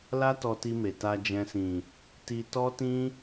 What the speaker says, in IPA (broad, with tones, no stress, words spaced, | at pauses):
la˦tɔ˧ti˧me˨ ta˧d͡ʒɛ̃˧sĩ˨ | ti˧tɔ˦tĩ˦